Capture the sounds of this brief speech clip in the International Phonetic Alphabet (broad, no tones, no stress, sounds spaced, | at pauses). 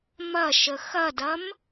m ɐ ʃ ə x ɐ d ɐ m